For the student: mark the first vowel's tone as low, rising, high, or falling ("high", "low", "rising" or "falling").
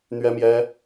high